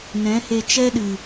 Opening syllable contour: rising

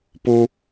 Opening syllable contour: high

